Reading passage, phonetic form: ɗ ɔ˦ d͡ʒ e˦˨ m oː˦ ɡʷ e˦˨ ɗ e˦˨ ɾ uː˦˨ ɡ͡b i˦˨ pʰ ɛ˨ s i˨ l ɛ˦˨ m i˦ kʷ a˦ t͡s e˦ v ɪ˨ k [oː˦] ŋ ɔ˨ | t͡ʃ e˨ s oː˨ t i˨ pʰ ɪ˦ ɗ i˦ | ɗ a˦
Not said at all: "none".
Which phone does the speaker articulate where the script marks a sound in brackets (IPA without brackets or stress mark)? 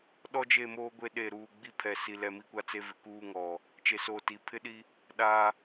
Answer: uː˦